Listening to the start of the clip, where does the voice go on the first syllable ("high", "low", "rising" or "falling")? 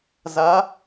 rising